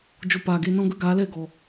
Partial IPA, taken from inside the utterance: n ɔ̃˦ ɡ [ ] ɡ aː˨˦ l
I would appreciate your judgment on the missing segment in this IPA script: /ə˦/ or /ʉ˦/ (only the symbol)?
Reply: ə˦